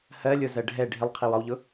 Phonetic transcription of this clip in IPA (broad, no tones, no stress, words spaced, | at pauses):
hɜ lʲʊzɜ ɖʱɛ ɖʱɪlˠqʰɪ wɒwʎʊ